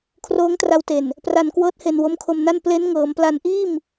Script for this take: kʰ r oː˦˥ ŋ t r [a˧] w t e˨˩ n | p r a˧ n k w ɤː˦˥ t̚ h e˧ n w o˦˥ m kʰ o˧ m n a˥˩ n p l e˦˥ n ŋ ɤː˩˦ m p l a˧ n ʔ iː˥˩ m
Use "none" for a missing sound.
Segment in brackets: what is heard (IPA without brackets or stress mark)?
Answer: a˧